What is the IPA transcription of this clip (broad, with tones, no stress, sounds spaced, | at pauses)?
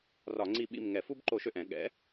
r ɒ˧˩˧ ŋ͡ǀ i˦˨ ɓ ḭ˦˨ m ŋ ɛ˧˩˧ f u˦ b ǃ o˧˩˧ ʃ ø˨˩ ʔ ɛ̃˧˩˧ ɠ ɛ̰˩˥